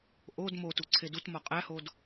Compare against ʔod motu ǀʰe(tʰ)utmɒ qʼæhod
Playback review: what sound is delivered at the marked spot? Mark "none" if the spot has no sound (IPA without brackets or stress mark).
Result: d